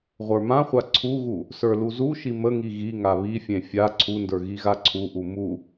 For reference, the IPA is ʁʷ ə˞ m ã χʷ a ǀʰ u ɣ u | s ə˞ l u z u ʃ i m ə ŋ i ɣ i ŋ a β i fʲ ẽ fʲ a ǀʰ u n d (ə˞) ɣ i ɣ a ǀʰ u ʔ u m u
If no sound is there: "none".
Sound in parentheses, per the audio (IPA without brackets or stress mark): ə˞